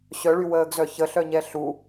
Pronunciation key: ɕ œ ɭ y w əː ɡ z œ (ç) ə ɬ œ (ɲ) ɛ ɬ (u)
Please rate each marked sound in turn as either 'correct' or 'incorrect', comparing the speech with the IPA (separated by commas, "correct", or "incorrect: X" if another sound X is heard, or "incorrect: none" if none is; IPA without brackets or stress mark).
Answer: correct, correct, correct